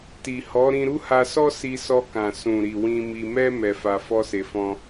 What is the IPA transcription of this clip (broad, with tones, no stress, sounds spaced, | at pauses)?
t i˨ h ɔ˨˦ ɾ ĩ˧ ɾ u˦ h a˧ s ɔ˦ s i˧ s ɔ˧ k ã˨ s ũ˨ ɾ i˨ w ĩ˧ m i˧ m ɛ˦ m ɛ˧ f a˧ f ɔ˦ s e˧ f ɔ̃˦